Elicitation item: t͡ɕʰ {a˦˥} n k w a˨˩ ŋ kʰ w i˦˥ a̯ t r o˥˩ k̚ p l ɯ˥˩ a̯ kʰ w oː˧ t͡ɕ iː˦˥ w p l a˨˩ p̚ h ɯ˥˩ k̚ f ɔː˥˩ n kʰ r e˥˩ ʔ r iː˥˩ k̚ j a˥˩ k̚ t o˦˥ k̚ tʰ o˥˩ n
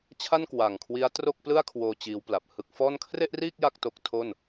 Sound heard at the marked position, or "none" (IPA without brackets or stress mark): a˥˩